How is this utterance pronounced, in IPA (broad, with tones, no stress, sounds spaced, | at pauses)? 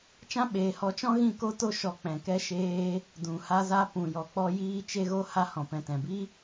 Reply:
t͡ʃ ã˧ ɓ eː˨ h ɔ˨˦ t͡ʃ ɔ̃˦ ɣ ĩ˦˨ k o˦ t o˦ ʃ ɔ˧ k͡p ɛ̃˨ k ɛ˦ ʃ eː˦ | d ũ˨ h a˧ z a˧ p ũ˨ j ɔ˨ k͡p ɔ˧ j iː˧ t͡ʃ e˧ ɣ o˧ h a˧ h ɔ̃˨ p ɛ̃˨ t ɛ̃˨ b i˦